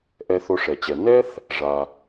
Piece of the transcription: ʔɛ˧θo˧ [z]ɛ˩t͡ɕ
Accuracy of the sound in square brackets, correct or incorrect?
incorrect